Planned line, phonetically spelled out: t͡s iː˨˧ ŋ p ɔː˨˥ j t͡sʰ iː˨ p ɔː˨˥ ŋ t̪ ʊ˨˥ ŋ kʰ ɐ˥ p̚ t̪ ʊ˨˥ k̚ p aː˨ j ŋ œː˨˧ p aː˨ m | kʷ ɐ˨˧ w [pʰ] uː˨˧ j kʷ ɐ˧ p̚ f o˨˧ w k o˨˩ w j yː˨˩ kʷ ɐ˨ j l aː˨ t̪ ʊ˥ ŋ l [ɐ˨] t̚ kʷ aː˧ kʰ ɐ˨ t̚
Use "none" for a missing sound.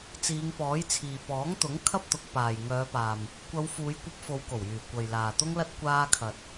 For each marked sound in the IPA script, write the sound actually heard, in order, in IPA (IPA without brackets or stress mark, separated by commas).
f, ɐ˥